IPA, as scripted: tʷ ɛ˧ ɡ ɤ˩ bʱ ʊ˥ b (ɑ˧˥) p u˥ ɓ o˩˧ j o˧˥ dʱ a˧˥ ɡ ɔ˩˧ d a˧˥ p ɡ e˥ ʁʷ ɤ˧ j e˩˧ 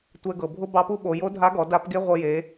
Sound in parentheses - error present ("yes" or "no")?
no